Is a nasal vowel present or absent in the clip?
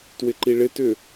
absent